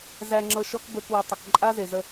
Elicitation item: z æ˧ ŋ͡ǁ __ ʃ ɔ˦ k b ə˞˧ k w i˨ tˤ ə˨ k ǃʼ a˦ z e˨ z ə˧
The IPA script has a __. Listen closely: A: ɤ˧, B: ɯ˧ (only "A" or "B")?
A